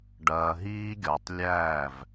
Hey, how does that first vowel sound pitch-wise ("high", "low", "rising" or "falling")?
low